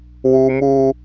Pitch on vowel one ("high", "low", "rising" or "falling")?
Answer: high